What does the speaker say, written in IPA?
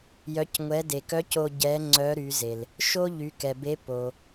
j œ˩˧ c ŋʷ ɛ˩˧ d e˩ k œ˧˥ c o˧ ɟ ɛ˧˥ ŋ͡ǀ œ˧˥ ɾ y˩˧ z e˩ l | ʃ o˥ ʎ y˩˧ k ɛ˩ b e˧˥ p o˩

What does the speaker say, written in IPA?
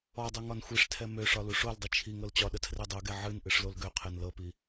ɔ dˤ ɤ ŋ ɒ n xʷ i ʂ tʰ ɛ m ø ʂ ɒ l u ʂ o l dˤ ɨ t͡ʃʰ i ŋ ɤ l t͡ɕ ɒ ɗ ə tʰ r ɛ dˤ ɤ ɡ ɛ ʕ ɨ n ʔ ɨ ʂ l o l ɡ ø qʰ ɛ n l ɤ p i

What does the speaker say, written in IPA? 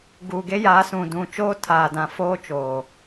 ɡ uː˨ ɡ e˦ j aː˨˦ s ũ˨ d ũ˨ t͡ʃ oː˦ tʰ aː˨ d ã˨ f oː˦ t͡ʃ oː˨

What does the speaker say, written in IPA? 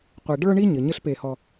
qʷ e˨ ɖ ə˞˦ ɳ i˦ ɲ ɘ˨ ɲ ɘ˥ ɬ p e˦ h ɔ˦

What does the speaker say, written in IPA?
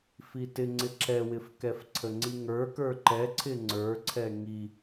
f i t ɪ ŋ͡ǀ ɪ ǁ ɛ w ɪ f k ɛ f ǀʰ ə ŋ͡ǀ i ŋ ə˞ k ə˞ ǃ ɛ ǀʰ ɪ ŋ͡ǀ ə˞ ǀʰ ɛ ŋ i

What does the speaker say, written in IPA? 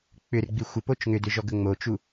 k͡p ʏ r ɡ͡b i xʷ ə p o t͡ʃ ŋ ʏ d ʏ ʒ ɔ ɡ ə ŋ͡m o t͡ʃ u

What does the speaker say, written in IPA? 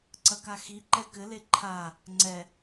ǀ ɐ k a x i ǃ ɛ k ɘ l e ǃʰ a | ŋ͡ǀ ɛ

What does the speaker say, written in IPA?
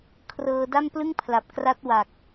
kʰ r ɤː˧ d a˥˩ m p l ɯ˥˩ ŋ pʰ l a˨˩ p̚ k r a˦˥ t̚ w a˨˩ k̚

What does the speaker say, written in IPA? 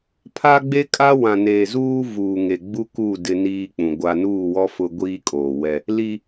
pʰ a˦ ɡ͡b e˦ kʼ a˦ w ã˨ n eː˨ z uː˦ v uː˨ ŋ e˨ ɡ͡b u˦ k uː˦˨ d ɪ˦ n iː˦ k͡p ũ˨ ɡʷ a˦ n uː˦˨ w ɔ˦ f ʊ˦ ɡʷ iː˦ kʼ oː˨ w ɛ˦ | l i˦

